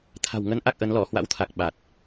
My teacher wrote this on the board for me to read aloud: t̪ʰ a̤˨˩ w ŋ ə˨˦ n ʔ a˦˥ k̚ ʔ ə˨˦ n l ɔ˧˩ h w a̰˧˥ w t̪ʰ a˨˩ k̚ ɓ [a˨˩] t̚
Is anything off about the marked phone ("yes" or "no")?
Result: no